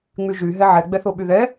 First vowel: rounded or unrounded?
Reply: rounded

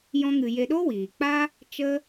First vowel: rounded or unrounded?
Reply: rounded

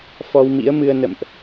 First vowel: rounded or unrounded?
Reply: rounded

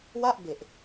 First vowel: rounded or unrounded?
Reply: unrounded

